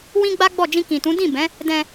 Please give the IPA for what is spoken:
w ĩ˦ ɡ͡b a˦ ɡ͡b ɔ˦˨ d͡ʒ ĩ˧ k ĩ˨ t ũ˨˦ d ĩ˦˨ b ɛ̃˨˦ | d ɛ̃˧

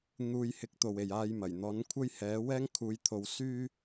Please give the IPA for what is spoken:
n̪ uː˧ j h ɪ˧ k̚ t̪ o˨ w e˨ j aː˧ j m ɐ˨˩ j n̪ ɔː˨˥ n kʷʰ ɐ˥ j h ɛː˨˥ w ɛː˥ ŋ kʰ uː˨˧ j t̪ʰ o˨˧ w s yː˥

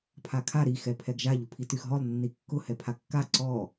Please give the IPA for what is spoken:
pʰ a kʰ a ɾ i x ɛ pʰ ɛ ɡ ʒ a ʎ ʊ pʰ i t y x ɦ ɔ lˠ nː i kː ʊ h ɛ pʰ a kː a ǀ ɔ

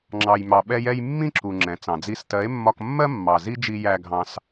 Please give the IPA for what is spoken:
ŋ͡ǁ ɑ˧ j m ɑ˧ ɓ ɛ˦ j ɛ˦ j mː ĩ˦ ǁ u˨ ŋ͡ǁ ɛ̃˨ t͡s ɑ̃˨ d͡z i˧ s t ɜ˨˦ e̯ mː ɒ˧ k mː ɜ˦ mː ɑ˨ z i˦ d͡ʒ i˧ j æ˧ ɡʱ ɑ̃˧ s

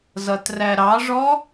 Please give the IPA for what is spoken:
z ʌ t r æ ɾ ɑ ʐ ɔ

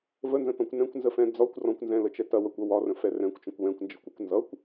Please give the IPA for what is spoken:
v ə n z ə̃ t ɔ̃ kʷ n ɛ̃ kʷ n z ə f ɛ̃ d͡z ɒ kʷ r ɔ̃ kʷ n z ɛ̃ l ə t͡ʃ ɛ t ɐ w ɐ kʷ ʌ w ɒ r ə̃ f ɛ r ɛ̃ kʷ t͡ʃ ə̃ kʷ w ɛ̃ kʷ n d͡ʒ ə kʷ ə kʷ n z ʌ kʷ

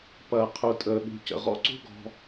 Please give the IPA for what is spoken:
p ɐː˩ qʰ u˩ tʼ əː˩ ɠ ṳ˩ c ə̰˩ ʁ ɔ̰˥ ǀ ṳ˥ ɡ ɔ̤˨

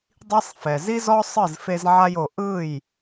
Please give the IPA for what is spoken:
dˤ i˦ sˤ f ɛ˨ z i˦ z ɔ˦ sˤ ɯ˦˨ z f e˧ z ʕ a˧ j o˨ ʔ ɯ˦˨ j

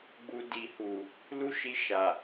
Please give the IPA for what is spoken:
ɡ͡b u˧ d i˨ h u˨ | l u˦ ʃ i˧ ʃ a˨

